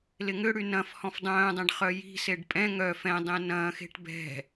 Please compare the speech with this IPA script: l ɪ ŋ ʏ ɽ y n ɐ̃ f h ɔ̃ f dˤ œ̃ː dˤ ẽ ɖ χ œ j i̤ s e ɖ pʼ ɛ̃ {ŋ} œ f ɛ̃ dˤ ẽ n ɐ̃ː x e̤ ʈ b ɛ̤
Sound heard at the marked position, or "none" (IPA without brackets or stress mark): ŋ